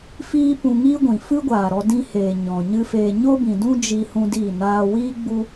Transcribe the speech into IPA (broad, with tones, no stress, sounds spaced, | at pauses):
f iː˦ p ũ˧ ŋ iː˦ ɡʷ ĩ˨ f ɨ˦ ɡʷ aː˨ ɾ ɔ˧ d ĩ˧ h eː˨ ɲ ɔ̃˨ ɲ ɨ˦ f eː˧ ɲ o˦ b ĩ˨ d ũ˦ d͡ʒ i˦ h ũ˦ d i˦˨ n aː˦ w iː˦ ɡ͡b u˦